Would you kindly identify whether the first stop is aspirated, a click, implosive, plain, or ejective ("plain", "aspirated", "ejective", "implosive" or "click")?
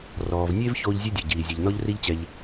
plain